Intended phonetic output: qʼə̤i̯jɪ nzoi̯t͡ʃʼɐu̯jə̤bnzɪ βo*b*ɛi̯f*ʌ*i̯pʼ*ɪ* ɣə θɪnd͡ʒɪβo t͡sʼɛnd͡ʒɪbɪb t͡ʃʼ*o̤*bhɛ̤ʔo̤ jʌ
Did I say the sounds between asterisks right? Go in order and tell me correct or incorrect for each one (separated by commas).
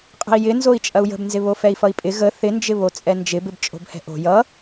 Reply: incorrect, correct, correct, correct